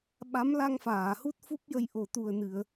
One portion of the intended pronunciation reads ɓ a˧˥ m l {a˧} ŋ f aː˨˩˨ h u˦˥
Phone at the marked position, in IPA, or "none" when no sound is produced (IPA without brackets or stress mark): a˧